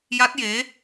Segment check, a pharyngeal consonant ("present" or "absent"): absent